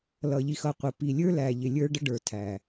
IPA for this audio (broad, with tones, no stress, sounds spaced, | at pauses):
l ʌ˨ ʎ i˨ x ʌ˨ qʷ ə˨ p i˨ lʲ ə˞˦ l æ˨ ʎ ɪ˨ lʲ ə˞˦ ɖ ə˦ ɖ ə˞˨ tʰ æ˨